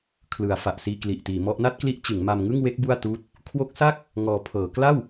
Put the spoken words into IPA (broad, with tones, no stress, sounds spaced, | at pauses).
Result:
kʰ l ɯ˩˦ a̯ f a˨˩ ʔ s iː˧ k l i˨˩ ʔ t iː˩˦ m ɔ˦˥ ʔ n a˥˩ t̚ k l i˦˥ ʔ t͡ɕ ɯ˩˦ ŋ m a˧ m ŋ ɯ˥˩ ŋ w e˦˥ k̚ b u˥˩ a̯ t uː˦˥ t̚ | kʰ w o˦˥ k̚ s a˥˩ k̚ | ŋ ɔː˧ pʰ ɤː˩˦ k l a˥˩ w